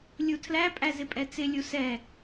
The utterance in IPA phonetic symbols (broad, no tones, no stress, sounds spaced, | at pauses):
lʲ u tʰ l æ pʼ æ z ɪ pʼ ɛ t͡s ɪ lʲ u s ɛ